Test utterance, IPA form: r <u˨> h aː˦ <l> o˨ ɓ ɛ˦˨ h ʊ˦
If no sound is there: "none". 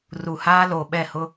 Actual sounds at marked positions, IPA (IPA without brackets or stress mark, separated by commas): u˨, l